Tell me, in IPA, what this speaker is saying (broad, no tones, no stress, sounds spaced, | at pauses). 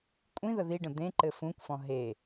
kʷʼ ĩ ð ə ð i ɖ ə̃ d̪ ẽ ǃ ɘ f ũ kʷ f ɔ̃ ɦ e